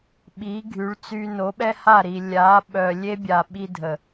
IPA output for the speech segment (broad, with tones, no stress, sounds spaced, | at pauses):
ɓ i˨˦ ɡʱ y˨˦ ɭ t͡s yː˧ n o˨˦ ɓ ɛ˦ h a˦˨ ɾ i˨ lʲ a˨˦ ɓ œ˨ lʲ e˦ bʲ a˨ ɓ i˧ dʱ ə˨